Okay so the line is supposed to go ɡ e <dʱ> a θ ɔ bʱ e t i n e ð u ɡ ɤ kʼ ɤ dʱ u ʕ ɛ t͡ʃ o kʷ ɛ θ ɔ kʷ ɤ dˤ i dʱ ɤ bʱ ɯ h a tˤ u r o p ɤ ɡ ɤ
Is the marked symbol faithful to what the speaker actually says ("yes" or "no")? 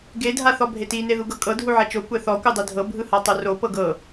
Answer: yes